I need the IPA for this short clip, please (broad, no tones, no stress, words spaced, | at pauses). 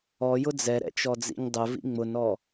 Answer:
ɔjʊ d͡zɛɾɛ̰t͡ʃɔd͡zḭɲ dˤʊvḭ ŋ͡mʊnɔ